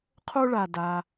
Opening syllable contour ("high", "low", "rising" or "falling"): high